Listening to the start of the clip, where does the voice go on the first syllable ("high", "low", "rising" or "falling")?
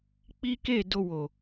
high